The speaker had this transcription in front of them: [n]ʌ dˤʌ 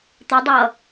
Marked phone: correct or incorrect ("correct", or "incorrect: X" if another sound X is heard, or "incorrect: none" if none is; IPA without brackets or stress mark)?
incorrect: t̪